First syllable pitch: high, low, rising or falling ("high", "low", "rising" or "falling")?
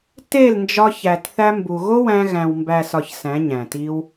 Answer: falling